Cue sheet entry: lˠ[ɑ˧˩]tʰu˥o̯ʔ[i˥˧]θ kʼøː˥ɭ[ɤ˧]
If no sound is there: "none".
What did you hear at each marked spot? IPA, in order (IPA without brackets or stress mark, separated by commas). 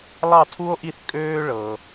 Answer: ɑ˥˧, i˥˧, ɤ˧